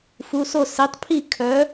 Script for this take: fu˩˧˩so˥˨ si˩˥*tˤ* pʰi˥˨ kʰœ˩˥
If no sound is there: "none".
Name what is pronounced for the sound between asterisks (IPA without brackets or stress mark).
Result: tˤ